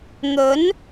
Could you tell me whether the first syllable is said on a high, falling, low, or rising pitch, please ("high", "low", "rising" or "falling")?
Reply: rising